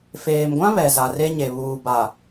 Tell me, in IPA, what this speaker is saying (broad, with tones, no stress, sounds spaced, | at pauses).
f eː˨ m ɡʷ ã˦ β ɛ˨ z a˨ r e˦ ɲ e˨ β uː˨ b a˨